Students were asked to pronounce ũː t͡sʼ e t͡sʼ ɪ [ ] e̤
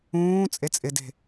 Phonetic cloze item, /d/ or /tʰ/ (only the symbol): d